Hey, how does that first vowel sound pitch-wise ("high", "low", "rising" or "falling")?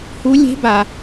rising